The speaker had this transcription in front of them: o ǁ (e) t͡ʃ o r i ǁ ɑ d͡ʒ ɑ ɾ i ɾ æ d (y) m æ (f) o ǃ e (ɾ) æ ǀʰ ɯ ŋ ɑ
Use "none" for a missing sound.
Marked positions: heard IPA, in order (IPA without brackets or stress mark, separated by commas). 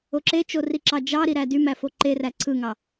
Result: e, y, f, r